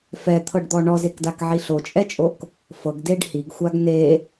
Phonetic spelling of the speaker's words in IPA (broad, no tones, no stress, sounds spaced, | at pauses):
f ɛ t̪ʰ ɤ ɖ d̪ ɔ ɳ ɔ z e k d a k ʕ i ɬ o t͡ʃʼ ɛ t͡ʃʼ o k | f ɤ ɡ d e ɖ h i ɡ xʷ a ɡ n e